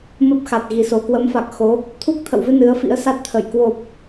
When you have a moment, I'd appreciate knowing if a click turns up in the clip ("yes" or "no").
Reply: no